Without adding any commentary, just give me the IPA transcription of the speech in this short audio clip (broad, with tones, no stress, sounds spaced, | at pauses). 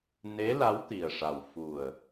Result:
n e˧˥ l a˧˥ w t̪ i˨˩ ə̯ ʂ a˨˩ w f u˨˩ ə̯